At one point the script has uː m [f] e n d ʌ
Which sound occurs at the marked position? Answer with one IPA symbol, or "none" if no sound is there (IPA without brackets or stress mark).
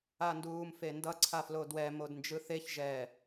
f